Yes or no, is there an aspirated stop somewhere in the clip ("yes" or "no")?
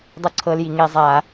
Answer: yes